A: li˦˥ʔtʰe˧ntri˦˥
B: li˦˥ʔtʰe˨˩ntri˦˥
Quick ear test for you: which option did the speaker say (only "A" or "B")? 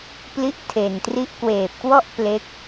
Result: B